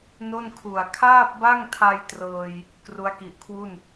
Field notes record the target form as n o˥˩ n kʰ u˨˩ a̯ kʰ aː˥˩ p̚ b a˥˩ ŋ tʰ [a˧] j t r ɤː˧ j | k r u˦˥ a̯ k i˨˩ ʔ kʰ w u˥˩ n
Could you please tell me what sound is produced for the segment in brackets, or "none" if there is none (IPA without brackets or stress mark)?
a˧